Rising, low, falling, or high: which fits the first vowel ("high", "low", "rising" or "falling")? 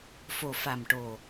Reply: low